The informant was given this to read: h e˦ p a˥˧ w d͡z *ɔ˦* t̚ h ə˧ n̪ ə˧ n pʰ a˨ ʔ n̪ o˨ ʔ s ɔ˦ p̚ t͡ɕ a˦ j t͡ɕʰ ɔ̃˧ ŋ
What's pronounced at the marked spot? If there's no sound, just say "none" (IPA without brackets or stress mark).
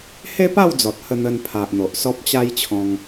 ɔ˨